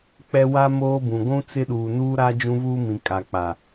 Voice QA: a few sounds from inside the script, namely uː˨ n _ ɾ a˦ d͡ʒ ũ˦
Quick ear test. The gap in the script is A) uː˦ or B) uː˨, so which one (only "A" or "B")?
A